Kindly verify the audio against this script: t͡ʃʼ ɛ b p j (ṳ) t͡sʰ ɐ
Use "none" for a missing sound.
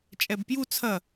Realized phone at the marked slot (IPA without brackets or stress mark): u